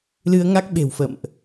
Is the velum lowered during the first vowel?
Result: no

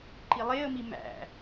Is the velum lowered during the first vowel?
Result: no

